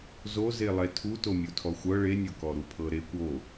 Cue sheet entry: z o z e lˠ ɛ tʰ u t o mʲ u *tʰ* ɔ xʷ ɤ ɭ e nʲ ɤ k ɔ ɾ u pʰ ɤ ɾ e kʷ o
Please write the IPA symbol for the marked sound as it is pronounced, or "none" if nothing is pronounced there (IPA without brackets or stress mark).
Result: tʰ